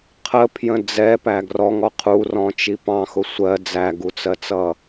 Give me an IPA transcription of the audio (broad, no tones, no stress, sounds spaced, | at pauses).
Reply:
qʰ ə pʰ j ə̃ d͡z ɛ p æ ɡ r ɔ ŋ ɔ qʰ u r ɔ̃ t͡ʃ i p ɑ̃ x ʊ sʷ ɜ d͡z æ ɡ u t͡s ɜ t͡s ʌ